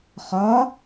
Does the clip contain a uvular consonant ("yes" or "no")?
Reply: yes